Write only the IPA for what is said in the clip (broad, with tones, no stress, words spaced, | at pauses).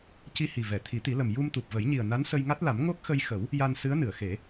ci˧hi˨˩vɛ˨˩˨ t̪ʰi˨˩˦t̪i˨˩˦lə˨˩m ju˧mt̪u˨˩p̚və˨˩˦jɲi˨˩ə̯ na˧˥nsə˧jŋa˦˥t̚la˨˩˦m ŋo˦˥k̚xə˧jxə˨˩˦w | ja˧nsɨ˧˥ə̯nɨ˨˩˨ə̯ xe˨˩˦